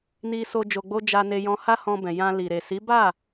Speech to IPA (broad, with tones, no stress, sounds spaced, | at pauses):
n i˧ s o˧ d͡ʒ o˧ ɡ͡b o˦ d͡ʒ a˧ n e˧ j ɔ̃˧ h a˦ h ɔ̃˧ b ɛ̃˨ j ã˧ l i˨ ɾ e˨ s i˨˦ b a˦˨